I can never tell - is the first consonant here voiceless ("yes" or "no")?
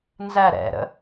no